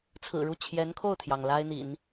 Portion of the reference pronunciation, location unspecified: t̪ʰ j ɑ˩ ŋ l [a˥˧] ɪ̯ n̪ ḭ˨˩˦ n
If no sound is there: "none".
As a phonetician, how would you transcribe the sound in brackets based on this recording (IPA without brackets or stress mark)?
a˥